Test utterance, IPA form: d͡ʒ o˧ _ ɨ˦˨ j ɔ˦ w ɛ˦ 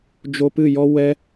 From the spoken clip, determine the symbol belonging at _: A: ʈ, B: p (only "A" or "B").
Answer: B